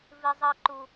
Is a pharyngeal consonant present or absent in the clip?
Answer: absent